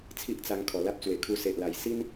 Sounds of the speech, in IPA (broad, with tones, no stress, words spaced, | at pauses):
t͡sʰi˦ʔt͡sa˧ŋ kʰɔ˨˩la˦p̚t͡swe˨˩ kʰu˧se˨ʔla˨˩j si˦n